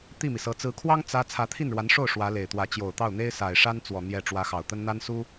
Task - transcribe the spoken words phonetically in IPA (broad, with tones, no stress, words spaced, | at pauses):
t̪i˥˩mi˩sɤ˧˥ t͡sɹ̩˧˥kʰwɑ˥ŋ t͡sä˥ t͡sʰä˧˥t̪ʰi˥˩nɻwa˧˥nʂo˥˩ʊ̯ ʂwä˧˥le˨˩ɪ̯t̪wä˧˥ t͡ɕjo˨˩ʊ̯t̪ɑ˥˩ʊ̯ n̪e˥ɪ̯sa˨˩ɪ̯ʂa˥nt͡swɔ˨˩ n̪jɛ˥˩ ʈ͡ʂwä˧˥xɑ˨˩ʊ̯t̪ə˥n n̪a˥n su˥